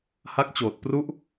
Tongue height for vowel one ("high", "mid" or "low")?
low